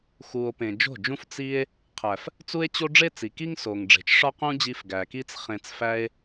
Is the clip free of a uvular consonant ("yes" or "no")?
no